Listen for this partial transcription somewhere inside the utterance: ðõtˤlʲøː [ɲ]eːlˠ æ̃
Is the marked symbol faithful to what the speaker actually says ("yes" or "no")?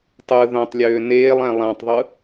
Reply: no